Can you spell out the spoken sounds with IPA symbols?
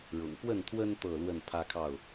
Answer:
ɻ ʊ̰˨˩ ŋ p w ə˥˨ n t̪ʰ w ə˦ n t̪ ɤ˥˨ l w ə˥˨ n pʰ ä˦ kʰ ɑ˥˨ ʊ̯

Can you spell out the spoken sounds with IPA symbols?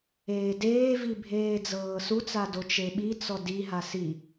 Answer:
eː d eː v i bʱ eː d͡z ɤː s u t͡s a d o t͡ʃ e ɓ i t͡s ɔ d i ɦ a s i

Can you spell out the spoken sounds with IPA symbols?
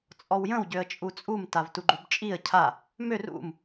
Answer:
t͡sʼ ɔ w j ə̃ w ɟ ø ə̯ t͡ʃʼ u t͡sʼ u m t a v t u ɡ͡ǃ u b t͡ʃʼ i ə̯ cʰ a | m ø r ṵ m

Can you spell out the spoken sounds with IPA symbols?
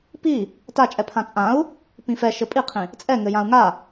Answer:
p i | t a t͡ʃʼ ɛ pʰ ã t͡sʼ ã u̯ | p ĩ f ɛ ʃ ɘ pʼ i qʰ ĩ | t͡sʼ ɛ ŋ ɘ j ã u̯ ŋ a

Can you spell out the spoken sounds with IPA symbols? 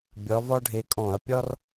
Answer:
bʲ ɒ˨˦ v ɒ˥ ɖʱ e˨˦ kʼ ɔ̃˧˩˧ ɐ̯ pʲ ɒ˥ r

